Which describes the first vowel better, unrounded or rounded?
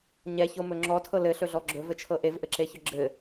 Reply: unrounded